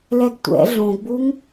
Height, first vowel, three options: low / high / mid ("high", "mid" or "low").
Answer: mid